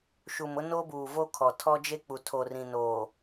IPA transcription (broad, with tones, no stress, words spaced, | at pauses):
ʃu˨mʊ˦no˦buː˨ vo˦kʰɔ˨tʰɔ˦d͡ʒe˦ k͡pu˨tʰoː˨rĩ˨ noː˨